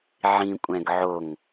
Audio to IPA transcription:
ʕ ĩ kʷʼ ɛ̃ ɡ ʕ o ŋ

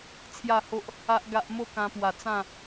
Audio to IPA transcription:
t͡sʰ j a˥˧ h o˦ ʔ | a˦ ʔ ɡ a˦ ʔ m o˦ k ã˧ p w a˨˩ t͡s ã˥˧

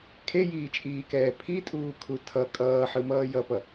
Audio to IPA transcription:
kʰ e j iː t͡ʃʼ iː k ɛː pʰ i tʼ uː kʰ u tʰ ʌ kʼ ʌː ħ ɯ m ʌː j ʌ p ʌ

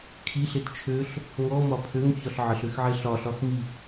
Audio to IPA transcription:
kʰ i ɬ e t t͡ʃʰ øː ɬ | ŋ ɔ m ɒ pʰ ø ŋ ç ɒ ɬ ʕ ə ɬ ø x ʕ e ɬ ɒ ɬ ɒ x m i

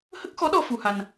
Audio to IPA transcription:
h ə˦˥ k̚ x ɔ˧˥ ɗ ɔ˧ f u˧ h a˧ n

